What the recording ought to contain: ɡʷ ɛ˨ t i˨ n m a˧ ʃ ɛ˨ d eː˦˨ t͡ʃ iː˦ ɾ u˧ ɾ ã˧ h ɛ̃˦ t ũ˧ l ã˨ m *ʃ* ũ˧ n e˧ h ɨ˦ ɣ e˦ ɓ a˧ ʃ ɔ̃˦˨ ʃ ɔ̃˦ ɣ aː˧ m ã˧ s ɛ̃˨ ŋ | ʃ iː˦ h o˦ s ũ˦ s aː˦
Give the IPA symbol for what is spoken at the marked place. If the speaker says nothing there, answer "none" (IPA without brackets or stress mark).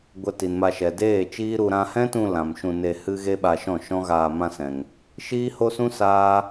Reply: ʃ